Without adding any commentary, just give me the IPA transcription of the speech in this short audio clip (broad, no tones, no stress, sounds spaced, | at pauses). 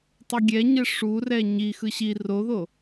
tˤ u ɡʲ ɛ ɲ ɛ ʂ u r ɛ ɲ i x ɯ ɕ i r o ð o